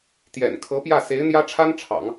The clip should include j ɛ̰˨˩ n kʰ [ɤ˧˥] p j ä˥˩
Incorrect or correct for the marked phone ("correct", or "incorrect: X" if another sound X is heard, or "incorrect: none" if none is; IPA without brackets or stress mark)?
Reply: correct